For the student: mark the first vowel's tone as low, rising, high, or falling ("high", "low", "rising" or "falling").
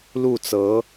falling